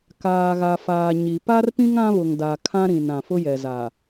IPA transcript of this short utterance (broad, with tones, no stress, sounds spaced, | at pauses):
k aː˨ ɣ a˨ f aː˨ ɲ i˨ p a˦ r p ĩ˦ ŋ ã˦ β ʊ˨ ŋ d a˨ kʰ ã˦ ɾ ĩ˨ n ã˨ f ʊ˦ j ɛ˨ z a˨